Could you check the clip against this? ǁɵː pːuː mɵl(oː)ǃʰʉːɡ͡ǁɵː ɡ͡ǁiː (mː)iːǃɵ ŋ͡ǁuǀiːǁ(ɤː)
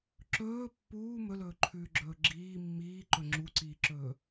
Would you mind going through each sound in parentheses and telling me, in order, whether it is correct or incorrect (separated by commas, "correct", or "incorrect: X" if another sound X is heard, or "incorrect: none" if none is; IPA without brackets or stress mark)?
incorrect: ɵː, correct, incorrect: ɵː